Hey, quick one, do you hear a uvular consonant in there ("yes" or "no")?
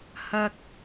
no